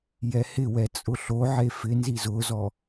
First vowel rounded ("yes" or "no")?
no